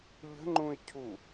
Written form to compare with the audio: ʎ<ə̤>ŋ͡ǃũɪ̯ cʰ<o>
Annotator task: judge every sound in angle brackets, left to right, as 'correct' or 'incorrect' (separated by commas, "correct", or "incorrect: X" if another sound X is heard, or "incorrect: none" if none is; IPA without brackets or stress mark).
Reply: correct, incorrect: u